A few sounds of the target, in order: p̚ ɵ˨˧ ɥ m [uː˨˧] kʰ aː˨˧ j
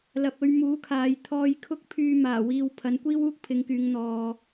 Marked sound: incorrect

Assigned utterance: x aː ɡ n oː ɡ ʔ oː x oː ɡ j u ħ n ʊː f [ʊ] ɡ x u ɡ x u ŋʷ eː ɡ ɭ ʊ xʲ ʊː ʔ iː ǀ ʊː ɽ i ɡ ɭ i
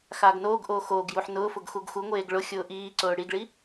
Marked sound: correct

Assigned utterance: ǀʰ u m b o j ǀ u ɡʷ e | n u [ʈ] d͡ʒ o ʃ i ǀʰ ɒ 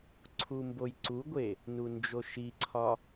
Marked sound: incorrect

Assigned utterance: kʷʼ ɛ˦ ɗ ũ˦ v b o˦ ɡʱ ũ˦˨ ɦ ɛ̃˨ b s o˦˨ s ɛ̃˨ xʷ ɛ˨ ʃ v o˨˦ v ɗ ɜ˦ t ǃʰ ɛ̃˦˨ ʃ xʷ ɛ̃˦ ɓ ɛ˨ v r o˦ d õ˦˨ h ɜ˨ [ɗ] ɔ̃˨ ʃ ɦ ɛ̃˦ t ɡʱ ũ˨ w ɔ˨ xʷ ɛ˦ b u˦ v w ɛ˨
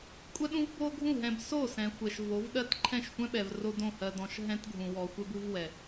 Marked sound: incorrect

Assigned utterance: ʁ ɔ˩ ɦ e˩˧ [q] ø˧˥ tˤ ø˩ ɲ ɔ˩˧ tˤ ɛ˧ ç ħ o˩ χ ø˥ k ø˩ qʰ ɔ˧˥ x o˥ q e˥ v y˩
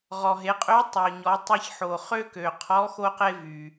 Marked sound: incorrect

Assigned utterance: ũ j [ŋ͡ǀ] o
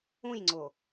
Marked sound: correct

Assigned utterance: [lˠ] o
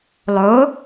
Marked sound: correct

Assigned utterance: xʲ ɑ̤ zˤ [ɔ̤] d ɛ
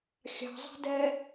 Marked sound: incorrect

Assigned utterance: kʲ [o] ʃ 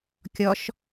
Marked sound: incorrect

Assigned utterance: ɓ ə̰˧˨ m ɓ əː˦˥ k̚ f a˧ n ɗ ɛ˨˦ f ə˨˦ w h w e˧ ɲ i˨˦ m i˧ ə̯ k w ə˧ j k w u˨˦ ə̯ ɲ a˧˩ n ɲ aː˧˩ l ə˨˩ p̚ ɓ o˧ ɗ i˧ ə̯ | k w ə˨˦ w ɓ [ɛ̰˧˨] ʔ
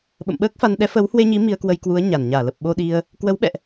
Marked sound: correct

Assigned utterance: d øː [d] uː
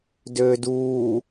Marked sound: correct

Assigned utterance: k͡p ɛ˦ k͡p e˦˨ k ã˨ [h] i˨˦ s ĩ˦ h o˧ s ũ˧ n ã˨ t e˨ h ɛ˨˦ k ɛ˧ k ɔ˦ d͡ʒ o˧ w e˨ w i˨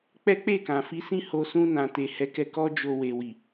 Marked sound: incorrect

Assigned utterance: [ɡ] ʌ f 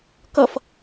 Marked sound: incorrect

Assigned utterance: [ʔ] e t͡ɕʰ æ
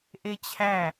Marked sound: correct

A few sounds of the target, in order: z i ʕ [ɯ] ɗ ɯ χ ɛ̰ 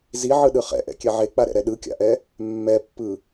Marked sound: correct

